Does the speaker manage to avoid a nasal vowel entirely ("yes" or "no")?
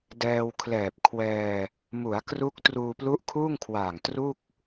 yes